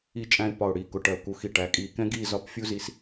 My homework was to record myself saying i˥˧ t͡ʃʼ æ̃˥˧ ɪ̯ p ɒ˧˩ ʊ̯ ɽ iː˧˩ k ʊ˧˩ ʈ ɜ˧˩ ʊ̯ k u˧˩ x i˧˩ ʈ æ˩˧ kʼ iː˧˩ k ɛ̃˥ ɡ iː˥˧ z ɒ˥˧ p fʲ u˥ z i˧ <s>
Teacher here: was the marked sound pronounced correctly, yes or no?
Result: yes